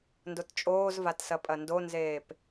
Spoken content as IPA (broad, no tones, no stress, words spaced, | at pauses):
ndott͡ʃʼoːzvatsɐ pʼɐndonzeːp